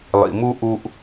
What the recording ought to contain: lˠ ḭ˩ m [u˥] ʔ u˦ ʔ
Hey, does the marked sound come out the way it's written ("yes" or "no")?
yes